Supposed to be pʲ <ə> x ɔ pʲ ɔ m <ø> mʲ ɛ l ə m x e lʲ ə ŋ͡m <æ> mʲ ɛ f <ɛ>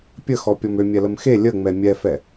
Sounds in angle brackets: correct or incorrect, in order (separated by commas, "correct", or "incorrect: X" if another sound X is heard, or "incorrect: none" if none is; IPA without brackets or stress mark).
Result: correct, correct, incorrect: ɛ, correct